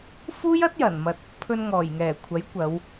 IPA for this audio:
fuː˥jɐ˥t̚jɐ˨˩nmɐ˨t̚ | pʰɵ˧nŋɔː˨˩jŋɛː˨˩kʷʰɐ˨˥j kʷɐ˨˧w

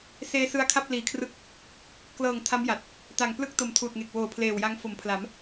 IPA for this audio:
seː˧sɯ˧a̯kʰa˥˩p̚ liː˨˩kʰrɯ˦˥k̚ | klɤː˨˩ŋ tʰa˦˥mja˨˩t̚ | ta˨˩ŋplɯ˥˩k̚ to˨˩mtʰuː˨˩t̚ŋe˨˩k̚ woː˨˩pʰleː˨˩wja˦˥ŋ fo˩˦mpʰla˩˦m

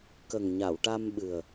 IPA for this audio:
kə˨˩ŋɲa˨˩˨wʈa˧mɓɨ˨˩ə̯

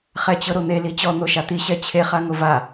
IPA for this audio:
χɛt͡ɕɤɾon̪e lit͡ɕɔ n̪oʃat̪i ɕɛt͡ɕʰe χaŋova

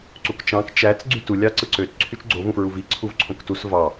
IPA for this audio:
ǀukt͡ʃɑ̃k t͡ʃæt͡s ɡ͡ǀytu lʲɑǀɯǀøt ǀʰyt͡ʃɡ͡ǀo vũfɹuvi ǀʰuvǀʰõktus vɑ

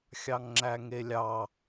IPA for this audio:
xʲɑŋŋ͡ǁæŋelʲɑ

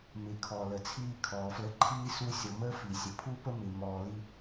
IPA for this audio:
mɪ˨ kʰɔ˨ lə˨t͡sʰiː˦kʰɔː˨flə˦ ǃʰiː˦ su˦ sʲɔ˨məː˦ fi˨sʲə˨ pʰu˦pə˦mɪ˨ mɔː˨li˦

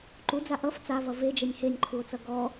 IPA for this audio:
ǃud͡za ʔʌf t͡savʌ ved͡ʒenʲ henʲǃʰuo̯t͡sʌ ɡɔ

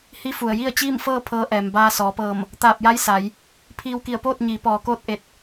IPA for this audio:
hi˧˥fu˩ə̯ ji˥˨ə̯ t͡ɕiː˥˨mfɤː˥˨ pʰɤː˧˥ʔɛː˩m baː˧sɔː˩˧pɤː˧˩m | t̪aː˧˩p̚ja˧˥j sa˩˧j | pʰiː˧wki˧˩ə̯poː˥˨t̚ ɲiː˩˧ pɔː˩koː˧˥t̚ ʔe˧˩t̚

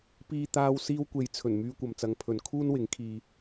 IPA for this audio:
piː˧t̪aː˧w siː˧wkʷe˨jt͡sʰɵ˨˩n myː˧kʷɐ˨mt͡sɐ˨˧ŋ pʰɵ˨nkʰuː˥nwɪ˨˥ŋ kʰiː˧

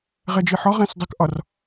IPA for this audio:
ʁɛd͡ʒiħɒ ʁɛ̃sdˤəkʔɒr

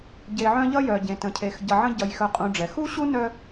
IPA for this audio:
ɟe˨ʕœ̃˦ ʎʌ˥jœ˨ɟẽ˨ tə̃˨cʰe˨x ɟʌ˨ʕə̃˦ ɟʌ˨jxœ˨qʼũ˨ɖ͡ʐɛ˩ xu˥ɕu˥nœ˦

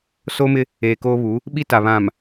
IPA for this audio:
soː˦mɪ˦ | eː˨koː˦βu˨˦ | ɓi˦ta˨βã˨m

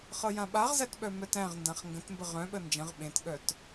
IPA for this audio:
χɤjãɓaʁzæt ɓœmœtæ̃ʁndãχ ŋɡə̃tmbə ʁœ̃ɓə nd͡ʒə̃ʁ ɓẽtɠœt

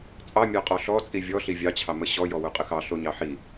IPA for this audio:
t͡sʼɑmʲɑqʼɔ ɬɔt͡sʼi vʲɔɬi vʲɑt͡ɕʰɑ məɕɔ jɔwoqʼəxɑ ɬoɲɑħi

